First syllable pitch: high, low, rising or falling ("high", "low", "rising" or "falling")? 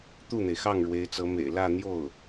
falling